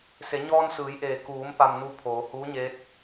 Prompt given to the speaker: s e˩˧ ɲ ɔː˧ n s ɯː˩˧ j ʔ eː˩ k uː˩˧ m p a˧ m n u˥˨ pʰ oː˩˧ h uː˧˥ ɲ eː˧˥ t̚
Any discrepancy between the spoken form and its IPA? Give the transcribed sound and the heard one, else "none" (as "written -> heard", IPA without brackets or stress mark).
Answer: none